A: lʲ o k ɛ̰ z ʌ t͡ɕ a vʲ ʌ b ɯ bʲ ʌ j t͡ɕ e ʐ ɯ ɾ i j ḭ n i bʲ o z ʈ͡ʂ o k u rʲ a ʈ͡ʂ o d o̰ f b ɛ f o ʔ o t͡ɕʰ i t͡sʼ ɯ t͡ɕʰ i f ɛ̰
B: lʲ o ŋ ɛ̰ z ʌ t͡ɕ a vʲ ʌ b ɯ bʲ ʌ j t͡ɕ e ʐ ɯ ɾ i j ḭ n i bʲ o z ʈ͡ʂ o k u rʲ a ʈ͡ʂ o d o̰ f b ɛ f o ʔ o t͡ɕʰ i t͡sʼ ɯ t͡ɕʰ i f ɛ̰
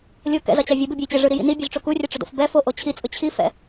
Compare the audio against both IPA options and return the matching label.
A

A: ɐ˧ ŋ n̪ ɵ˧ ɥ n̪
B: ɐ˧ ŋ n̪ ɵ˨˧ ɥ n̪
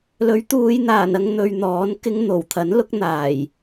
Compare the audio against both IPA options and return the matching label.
A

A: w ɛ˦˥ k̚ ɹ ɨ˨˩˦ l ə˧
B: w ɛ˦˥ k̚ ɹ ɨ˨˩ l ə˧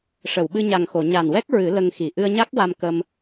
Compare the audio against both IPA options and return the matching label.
A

